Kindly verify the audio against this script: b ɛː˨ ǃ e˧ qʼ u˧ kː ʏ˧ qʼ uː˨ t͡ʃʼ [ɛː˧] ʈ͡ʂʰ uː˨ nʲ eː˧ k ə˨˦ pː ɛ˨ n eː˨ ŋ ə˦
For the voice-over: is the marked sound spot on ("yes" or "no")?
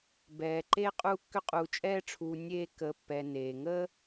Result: yes